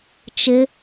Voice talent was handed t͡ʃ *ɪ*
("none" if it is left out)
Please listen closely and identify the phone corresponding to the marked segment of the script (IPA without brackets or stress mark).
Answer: ɪ